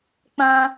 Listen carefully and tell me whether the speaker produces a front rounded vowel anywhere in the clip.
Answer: no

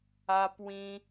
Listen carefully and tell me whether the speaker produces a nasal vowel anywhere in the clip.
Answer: yes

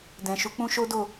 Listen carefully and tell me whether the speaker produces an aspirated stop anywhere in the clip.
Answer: no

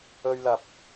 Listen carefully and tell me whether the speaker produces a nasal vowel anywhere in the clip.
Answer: no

